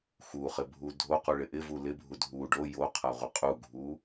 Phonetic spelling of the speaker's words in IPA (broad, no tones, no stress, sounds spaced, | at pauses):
x u χ ɪ bʱ u dʱ o q u ɭ ɪ ʔ ɪ v u l ɪ bʱ u dʱ u ɖ o j o qʰ a ʁʷ ɪ qʼ u ɡʱ u